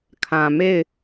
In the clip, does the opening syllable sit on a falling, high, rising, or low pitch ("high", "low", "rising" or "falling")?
low